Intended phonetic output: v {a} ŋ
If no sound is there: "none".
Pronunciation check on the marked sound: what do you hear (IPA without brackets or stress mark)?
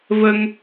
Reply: ə